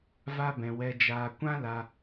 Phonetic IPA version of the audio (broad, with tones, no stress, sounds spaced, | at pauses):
v a˦ b ɛ̃˧ w ɛ˧ d͡ʒ aː˧ kʷ ã˦ l a˧